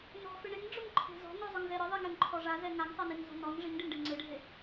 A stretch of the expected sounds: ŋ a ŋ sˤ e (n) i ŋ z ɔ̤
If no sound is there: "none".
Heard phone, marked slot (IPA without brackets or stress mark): n